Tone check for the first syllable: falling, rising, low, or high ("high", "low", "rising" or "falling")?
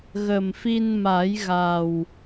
low